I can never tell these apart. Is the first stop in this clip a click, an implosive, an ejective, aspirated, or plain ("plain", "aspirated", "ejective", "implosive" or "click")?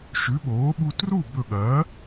implosive